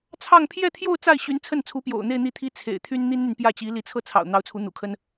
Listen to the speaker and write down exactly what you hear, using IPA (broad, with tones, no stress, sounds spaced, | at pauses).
t͡sʰ ɑ˥˧ ŋ pʰ j ɛ˥˧ t̪ʰ j o˥˧ ʊ̯ t͡s a˥˩ ɪ̯ ɕ y˧˥ n t͡sʰ ə˥˩ n t͡sʰ u˧˥ p j o̰˨˩ ʊ̯ n̪ e˥˧ ɪ̯ n̪ i˥˩ t̪ʰ i˥ t͡sʰ ḛ˨˩ ɪ̯ t̪ʰ y˥ n n̪ i˥ n n̪ y˨ n p j ä˥˩ t͡ɕ i˧˥ l i˧˥ t͡sʰ ɤ˥˩ t͡sʰ ɑ̰˨˩ ʊ̯ n̪ ɑ˧˥ ʊ̯ t͡sʰ u˧˥ n̪ ṵ˨˩ kʰ ə˥ n